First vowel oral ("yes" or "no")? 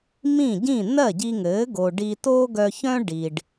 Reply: no